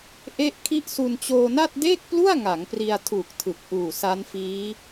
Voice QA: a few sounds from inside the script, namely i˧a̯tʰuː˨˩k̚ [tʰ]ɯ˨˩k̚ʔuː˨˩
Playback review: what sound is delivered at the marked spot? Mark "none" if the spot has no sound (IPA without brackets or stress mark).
tʰ